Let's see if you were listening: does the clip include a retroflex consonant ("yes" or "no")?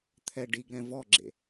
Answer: yes